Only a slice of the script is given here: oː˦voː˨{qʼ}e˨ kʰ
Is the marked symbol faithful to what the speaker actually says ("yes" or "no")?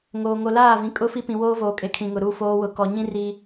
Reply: no